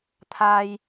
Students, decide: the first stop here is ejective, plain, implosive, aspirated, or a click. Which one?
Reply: aspirated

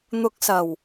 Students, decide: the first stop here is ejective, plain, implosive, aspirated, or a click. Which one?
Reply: plain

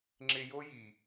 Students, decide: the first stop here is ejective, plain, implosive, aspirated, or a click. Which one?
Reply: click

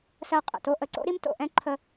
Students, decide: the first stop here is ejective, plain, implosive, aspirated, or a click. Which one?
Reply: ejective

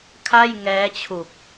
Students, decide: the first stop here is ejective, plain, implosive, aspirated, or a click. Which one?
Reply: aspirated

